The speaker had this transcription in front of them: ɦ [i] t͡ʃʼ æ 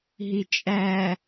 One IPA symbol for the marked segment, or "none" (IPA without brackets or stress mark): i